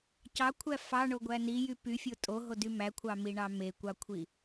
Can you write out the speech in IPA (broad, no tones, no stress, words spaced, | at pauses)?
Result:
cɑkʷʰæ fɑɳoɡʷæ nijy pyfʲo tʼoɦody mækʷʰɑmiɳɑ mekʷɑkʷʰi